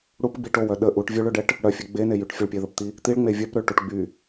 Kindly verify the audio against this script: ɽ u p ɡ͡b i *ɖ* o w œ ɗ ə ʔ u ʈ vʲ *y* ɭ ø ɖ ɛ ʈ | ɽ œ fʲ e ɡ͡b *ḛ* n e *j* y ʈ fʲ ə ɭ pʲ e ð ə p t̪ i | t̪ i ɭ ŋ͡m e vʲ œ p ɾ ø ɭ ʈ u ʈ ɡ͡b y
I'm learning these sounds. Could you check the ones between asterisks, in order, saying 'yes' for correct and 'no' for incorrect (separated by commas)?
no, no, no, yes